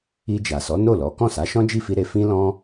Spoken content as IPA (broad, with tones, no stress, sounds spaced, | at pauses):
i˧ d͡ʒ a˨ s ɔ˨˦ n o˦˨ l ɔ˨˦ k ɔ̃˦˨ s a˨˦ ʃ ɔ̃˦ d͡ʒ i˦˨ f i˧ ɾ e˧ f ĩ˦ l ɔ̃˦